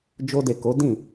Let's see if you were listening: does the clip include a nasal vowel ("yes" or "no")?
yes